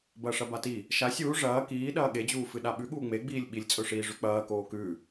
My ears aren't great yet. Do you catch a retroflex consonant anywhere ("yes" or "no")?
yes